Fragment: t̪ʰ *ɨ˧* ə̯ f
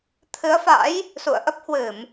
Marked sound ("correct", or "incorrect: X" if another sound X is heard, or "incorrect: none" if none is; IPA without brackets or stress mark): incorrect: ɨ˨˦